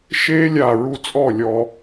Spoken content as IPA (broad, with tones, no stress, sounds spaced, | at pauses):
ʃ e˧ lʲ a˧˩ ɹ u˧ t͡sʼ ɔ˥˩ lʲ ɔ˧